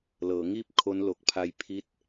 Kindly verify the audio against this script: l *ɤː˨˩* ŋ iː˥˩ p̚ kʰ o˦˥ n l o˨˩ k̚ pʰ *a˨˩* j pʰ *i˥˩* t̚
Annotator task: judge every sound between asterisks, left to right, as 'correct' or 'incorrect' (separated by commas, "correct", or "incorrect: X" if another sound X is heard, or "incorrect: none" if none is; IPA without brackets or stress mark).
incorrect: ɤː˩˦, incorrect: a˧, correct